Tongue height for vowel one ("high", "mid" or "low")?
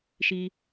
high